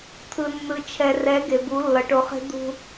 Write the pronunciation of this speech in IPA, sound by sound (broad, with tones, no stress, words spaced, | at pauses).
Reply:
t̪ʰɯ˨nːɯ˨ t͡ʃʰɛ˨rɛ˨˦ ɡe˨bu˨˦lːʌ˨ ʈo˨χe̤˦ d̪ṳ˦